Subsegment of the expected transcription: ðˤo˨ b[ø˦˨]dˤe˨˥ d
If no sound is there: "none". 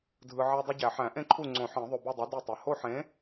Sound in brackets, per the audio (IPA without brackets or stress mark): u˦˨